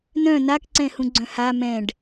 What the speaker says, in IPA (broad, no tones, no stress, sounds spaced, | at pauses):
n œ̃ n a k ǀ ɛ̃ h ũ ɡ͡ǀ œ̃ h a m ɛ̃ ɖ